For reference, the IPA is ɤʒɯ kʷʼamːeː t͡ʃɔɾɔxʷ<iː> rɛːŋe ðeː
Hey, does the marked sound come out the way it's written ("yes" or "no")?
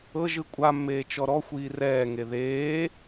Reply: yes